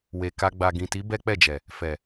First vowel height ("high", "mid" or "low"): mid